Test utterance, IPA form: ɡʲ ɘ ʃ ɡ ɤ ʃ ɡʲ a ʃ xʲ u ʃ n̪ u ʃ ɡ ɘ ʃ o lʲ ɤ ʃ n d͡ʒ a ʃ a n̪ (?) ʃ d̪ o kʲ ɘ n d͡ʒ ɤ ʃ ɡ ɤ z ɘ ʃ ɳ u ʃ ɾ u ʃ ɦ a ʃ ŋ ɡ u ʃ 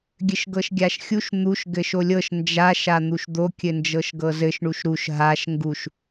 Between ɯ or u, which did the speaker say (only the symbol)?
u